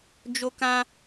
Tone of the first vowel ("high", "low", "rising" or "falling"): high